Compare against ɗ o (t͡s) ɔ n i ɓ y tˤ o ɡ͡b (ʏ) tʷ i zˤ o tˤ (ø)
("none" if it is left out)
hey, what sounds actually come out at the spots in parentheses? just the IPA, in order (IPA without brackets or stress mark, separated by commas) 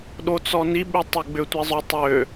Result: t͡s, ʏ, ø